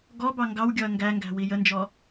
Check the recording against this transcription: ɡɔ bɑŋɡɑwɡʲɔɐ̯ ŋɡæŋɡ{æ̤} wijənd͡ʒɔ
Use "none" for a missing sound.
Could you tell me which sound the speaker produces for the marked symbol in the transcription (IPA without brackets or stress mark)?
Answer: æ̤